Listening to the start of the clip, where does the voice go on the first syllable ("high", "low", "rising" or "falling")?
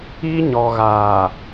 high